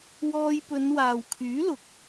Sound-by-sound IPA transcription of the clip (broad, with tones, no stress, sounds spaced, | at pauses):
w ɔː˧ j p ɵ˨˧ n w aː˨ w kʰ yː˨˥ l ʊ˨˥ k̚